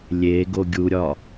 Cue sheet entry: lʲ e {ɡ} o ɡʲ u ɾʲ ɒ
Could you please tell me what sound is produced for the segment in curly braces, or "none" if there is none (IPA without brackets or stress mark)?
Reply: ɡ